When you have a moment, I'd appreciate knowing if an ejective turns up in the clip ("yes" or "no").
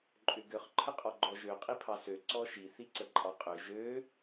yes